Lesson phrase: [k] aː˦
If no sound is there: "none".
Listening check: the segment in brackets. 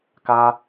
k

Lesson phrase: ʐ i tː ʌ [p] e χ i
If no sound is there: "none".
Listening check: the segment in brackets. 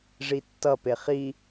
p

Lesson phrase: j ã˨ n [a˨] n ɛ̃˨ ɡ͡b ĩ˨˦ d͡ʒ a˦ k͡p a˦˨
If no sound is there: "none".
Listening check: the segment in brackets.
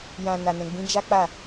a˨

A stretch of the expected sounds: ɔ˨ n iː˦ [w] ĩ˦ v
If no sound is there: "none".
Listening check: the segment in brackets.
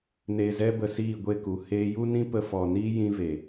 j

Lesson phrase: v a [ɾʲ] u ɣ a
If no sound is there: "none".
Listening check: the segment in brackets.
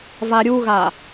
ɾʲ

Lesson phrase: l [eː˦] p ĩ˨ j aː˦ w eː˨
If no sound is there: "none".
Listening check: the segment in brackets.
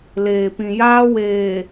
eː˨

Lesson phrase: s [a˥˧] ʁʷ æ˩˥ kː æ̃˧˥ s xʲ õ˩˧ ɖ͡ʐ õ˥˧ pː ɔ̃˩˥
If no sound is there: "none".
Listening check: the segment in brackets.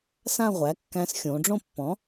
ã˥˧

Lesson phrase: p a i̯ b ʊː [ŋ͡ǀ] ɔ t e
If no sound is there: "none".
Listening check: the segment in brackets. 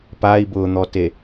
n̪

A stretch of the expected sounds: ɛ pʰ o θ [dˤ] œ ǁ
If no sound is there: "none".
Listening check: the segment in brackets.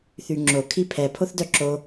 d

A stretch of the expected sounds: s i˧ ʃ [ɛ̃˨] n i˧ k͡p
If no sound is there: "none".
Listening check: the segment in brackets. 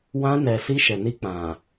ɛ˨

